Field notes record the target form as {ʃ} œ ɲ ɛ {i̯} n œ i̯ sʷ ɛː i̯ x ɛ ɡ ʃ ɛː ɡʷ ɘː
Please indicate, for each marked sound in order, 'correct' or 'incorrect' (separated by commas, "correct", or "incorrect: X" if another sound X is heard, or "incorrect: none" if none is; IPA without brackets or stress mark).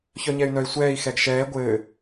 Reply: incorrect: ç, incorrect: y̯